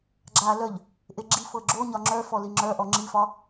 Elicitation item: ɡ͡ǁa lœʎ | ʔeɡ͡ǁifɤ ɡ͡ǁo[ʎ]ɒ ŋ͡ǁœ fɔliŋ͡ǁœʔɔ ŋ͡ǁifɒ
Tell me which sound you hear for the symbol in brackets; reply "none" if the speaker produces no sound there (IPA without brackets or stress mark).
ɲ